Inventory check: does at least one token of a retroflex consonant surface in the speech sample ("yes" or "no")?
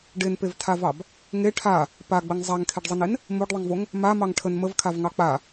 yes